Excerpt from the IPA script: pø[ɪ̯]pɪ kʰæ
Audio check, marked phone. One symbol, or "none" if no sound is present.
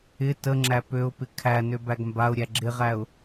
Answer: ʊ̯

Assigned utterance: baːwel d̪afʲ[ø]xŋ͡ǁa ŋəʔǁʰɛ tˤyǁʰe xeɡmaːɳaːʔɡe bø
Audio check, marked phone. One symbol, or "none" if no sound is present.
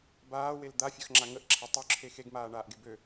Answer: œ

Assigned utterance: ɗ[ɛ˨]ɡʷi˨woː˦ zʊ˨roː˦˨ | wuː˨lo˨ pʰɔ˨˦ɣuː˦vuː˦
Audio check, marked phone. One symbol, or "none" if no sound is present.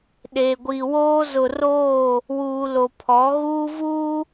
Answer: e˨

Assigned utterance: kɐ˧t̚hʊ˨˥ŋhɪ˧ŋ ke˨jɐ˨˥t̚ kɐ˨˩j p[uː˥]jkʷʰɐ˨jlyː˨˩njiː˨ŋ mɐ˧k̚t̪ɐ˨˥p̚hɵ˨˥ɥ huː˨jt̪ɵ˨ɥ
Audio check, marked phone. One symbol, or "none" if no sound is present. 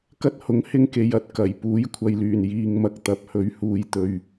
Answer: uː˨˥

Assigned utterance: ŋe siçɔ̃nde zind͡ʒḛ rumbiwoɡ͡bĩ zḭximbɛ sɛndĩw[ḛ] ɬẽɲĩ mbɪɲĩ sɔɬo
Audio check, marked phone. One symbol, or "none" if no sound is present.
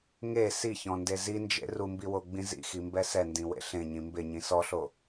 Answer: ḛ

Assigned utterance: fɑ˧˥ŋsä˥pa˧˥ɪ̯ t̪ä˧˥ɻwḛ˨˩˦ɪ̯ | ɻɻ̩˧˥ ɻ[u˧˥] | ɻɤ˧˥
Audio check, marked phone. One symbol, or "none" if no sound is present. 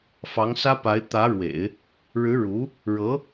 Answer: u˧˥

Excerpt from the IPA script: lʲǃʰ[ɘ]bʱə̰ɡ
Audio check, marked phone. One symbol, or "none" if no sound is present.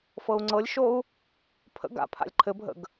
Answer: ɘ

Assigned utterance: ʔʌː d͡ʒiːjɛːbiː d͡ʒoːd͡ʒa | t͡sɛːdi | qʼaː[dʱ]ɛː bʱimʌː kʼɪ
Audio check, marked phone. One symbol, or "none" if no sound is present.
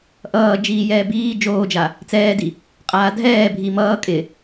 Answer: dʱ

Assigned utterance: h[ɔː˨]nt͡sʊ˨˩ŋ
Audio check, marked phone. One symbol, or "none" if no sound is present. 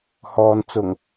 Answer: ɔː˨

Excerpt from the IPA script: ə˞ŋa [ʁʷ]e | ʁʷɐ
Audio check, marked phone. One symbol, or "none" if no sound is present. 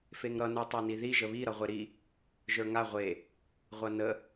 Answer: ʁʷ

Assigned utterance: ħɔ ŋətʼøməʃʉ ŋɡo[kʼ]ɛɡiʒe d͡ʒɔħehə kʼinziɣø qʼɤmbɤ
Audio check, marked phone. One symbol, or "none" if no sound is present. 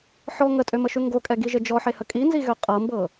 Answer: kʼ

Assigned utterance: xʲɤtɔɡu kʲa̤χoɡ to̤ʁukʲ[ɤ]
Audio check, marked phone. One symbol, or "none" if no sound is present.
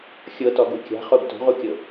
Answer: ɤ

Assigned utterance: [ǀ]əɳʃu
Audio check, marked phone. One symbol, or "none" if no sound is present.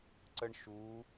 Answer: ǀ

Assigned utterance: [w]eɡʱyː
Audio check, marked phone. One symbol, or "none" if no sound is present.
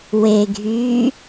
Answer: w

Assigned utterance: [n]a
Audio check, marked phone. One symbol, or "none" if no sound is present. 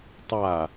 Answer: tˤ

